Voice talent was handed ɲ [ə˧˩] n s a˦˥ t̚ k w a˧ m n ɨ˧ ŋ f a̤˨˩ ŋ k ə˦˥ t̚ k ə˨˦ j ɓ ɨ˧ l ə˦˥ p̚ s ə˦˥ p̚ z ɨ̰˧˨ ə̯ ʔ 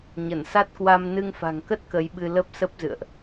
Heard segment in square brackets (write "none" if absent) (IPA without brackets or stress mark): ə˧˩